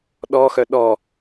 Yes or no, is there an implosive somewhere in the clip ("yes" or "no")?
yes